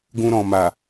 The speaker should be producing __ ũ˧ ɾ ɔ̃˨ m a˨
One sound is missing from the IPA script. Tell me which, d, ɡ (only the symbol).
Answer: ɡ